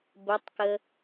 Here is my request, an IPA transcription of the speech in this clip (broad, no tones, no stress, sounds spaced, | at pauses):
b ə tˤ k ə